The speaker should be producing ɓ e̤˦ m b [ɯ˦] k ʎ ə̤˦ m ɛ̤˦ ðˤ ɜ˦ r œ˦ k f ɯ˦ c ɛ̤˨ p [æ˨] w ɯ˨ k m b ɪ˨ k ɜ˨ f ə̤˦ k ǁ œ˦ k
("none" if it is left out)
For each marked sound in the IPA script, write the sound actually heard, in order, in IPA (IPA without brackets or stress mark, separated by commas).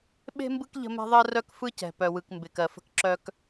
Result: ɯ˦, œ˨